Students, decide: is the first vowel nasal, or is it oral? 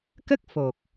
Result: oral